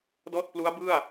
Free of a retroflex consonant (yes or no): yes